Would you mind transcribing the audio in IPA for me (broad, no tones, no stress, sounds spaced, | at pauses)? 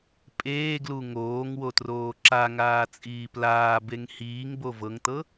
pʼ eː ɡ l u ŋ oː ŋ w o t r oː ǁ a ŋ aː t͡sʼ iː p l aː b e ŋ h iː ŋ b o v ɤ ŋ t ɤ